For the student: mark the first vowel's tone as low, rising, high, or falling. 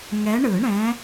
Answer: rising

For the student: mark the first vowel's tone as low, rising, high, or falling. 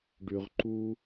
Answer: low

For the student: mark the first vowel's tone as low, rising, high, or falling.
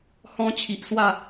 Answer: high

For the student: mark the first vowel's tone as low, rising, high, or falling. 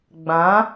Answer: rising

